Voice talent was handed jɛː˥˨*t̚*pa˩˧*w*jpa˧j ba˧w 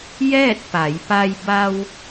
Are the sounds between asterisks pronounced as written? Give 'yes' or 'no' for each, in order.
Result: yes, no

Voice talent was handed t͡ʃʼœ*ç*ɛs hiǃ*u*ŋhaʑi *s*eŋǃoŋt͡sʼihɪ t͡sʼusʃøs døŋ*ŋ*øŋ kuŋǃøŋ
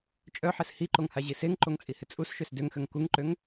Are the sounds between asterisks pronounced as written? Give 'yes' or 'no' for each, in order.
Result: no, no, yes, no

